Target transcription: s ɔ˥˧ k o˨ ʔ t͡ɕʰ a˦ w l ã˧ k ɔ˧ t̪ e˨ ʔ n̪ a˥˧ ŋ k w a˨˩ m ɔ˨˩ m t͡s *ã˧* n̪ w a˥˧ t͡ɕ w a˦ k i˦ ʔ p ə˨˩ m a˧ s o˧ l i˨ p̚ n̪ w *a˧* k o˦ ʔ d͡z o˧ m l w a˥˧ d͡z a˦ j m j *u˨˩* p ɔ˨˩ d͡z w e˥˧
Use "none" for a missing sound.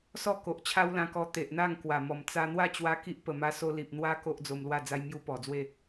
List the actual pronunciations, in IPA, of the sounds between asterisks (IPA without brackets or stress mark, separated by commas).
a˧, a˦, u˦